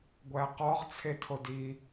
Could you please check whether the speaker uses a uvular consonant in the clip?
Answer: yes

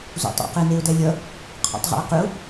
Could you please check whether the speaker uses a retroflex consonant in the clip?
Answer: no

